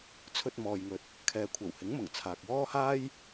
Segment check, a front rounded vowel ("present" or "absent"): absent